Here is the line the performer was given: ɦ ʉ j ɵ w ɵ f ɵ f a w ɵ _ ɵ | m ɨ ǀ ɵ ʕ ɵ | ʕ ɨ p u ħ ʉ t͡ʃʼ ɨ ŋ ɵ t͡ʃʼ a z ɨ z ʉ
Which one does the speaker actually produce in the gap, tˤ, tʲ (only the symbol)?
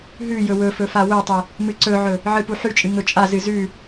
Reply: tˤ